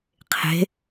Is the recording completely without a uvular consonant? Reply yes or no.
no